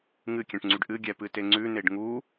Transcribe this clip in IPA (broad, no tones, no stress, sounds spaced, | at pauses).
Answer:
ŋ ɨ kʲ ɛ̃ ʈ ŋ͡ǀ y ɖ ʔ ɨ ɡʲ ɛ p ɨ t e ŋ͡ǀ ʉ n e ɖ ŋ u